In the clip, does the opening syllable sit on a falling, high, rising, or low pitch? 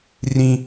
high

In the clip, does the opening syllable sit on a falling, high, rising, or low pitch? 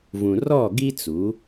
low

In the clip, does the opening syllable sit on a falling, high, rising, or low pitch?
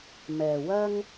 low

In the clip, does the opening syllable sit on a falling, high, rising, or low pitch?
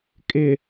low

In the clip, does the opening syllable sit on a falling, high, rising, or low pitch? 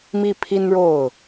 falling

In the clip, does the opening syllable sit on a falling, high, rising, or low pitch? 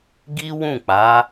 high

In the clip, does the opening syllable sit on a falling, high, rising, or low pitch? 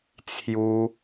high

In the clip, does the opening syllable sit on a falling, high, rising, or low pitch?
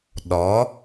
rising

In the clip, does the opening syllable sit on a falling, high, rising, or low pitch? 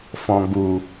low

